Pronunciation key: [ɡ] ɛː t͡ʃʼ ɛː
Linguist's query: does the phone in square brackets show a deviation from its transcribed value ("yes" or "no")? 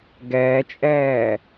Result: no